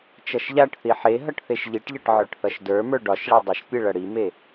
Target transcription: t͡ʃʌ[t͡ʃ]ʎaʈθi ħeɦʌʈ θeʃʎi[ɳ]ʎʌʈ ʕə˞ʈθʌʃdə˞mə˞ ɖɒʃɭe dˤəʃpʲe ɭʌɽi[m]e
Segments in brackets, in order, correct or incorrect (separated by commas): incorrect, incorrect, correct